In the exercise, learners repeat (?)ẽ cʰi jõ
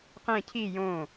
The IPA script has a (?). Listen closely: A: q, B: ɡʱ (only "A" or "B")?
A